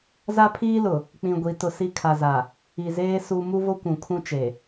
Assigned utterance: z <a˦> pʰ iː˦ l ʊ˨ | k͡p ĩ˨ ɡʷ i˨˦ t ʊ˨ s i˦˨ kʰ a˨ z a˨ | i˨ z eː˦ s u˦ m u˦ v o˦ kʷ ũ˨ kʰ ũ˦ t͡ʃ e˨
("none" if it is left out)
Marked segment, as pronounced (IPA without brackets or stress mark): a˦